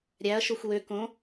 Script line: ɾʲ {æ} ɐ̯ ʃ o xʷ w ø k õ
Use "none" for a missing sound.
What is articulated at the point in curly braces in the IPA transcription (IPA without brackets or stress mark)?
æ